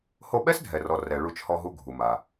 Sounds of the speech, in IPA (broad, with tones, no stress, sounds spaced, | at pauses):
h o˧ ɓ ɛ˥ s dʱ ɛ˩ r ɔ˩ r ɛ˩ ɭ u˧ t͡ʃ h ɔ˧ ɦ u˧ ɡʱ u˩ m a˩